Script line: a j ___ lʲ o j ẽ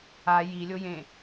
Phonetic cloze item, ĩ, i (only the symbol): i